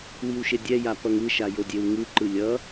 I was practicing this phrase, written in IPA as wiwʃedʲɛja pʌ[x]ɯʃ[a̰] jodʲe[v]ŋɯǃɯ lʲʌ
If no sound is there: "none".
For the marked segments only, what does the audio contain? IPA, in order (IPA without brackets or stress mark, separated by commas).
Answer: ŋ, a, w